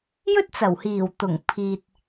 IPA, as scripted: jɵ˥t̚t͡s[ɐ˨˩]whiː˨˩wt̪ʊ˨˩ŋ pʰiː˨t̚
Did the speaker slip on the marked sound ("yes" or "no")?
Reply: no